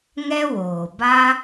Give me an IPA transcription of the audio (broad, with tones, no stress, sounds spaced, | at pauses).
ŋ ɛ˦ w oː˨ b a˦